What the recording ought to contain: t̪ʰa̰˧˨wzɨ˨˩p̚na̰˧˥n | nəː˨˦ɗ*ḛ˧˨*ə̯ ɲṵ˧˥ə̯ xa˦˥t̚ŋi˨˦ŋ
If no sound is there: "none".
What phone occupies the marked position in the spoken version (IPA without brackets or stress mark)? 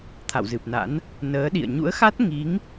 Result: ḭ˧˨